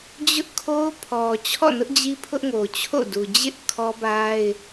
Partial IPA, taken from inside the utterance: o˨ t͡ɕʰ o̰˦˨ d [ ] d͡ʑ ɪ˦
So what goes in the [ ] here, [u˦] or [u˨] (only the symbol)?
u˨